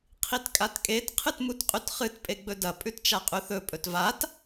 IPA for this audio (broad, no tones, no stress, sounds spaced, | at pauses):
qʰ i t kʼ a t kʼ e t qʰ ɨ t m u t qʼ ʉ t χ ɨ t pʼ e ɡ͡b ɵ d ɐ pʼ ʉ t t͡ʃ a qʼ ʉ θ ɵ pʼ ɵ t v a t